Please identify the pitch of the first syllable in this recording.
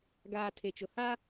low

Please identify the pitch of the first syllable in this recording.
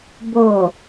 low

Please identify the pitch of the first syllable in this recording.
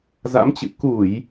rising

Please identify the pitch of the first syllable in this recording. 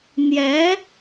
rising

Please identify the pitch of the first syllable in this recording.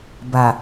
low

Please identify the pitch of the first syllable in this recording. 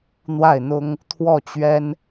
falling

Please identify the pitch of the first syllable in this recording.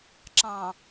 low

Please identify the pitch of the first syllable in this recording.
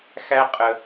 high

